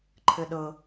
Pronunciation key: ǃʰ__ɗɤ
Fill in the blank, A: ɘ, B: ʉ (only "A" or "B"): A